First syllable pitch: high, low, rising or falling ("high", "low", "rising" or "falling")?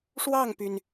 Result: falling